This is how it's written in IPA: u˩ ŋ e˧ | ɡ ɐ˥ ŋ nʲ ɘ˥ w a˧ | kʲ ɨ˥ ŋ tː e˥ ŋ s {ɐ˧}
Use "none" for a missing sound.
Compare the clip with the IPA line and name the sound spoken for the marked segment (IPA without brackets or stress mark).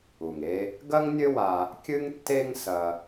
ɐ˧